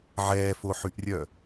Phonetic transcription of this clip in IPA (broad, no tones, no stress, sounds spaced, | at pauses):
ʕ ɛː f o ħ y ʔ rʲ œ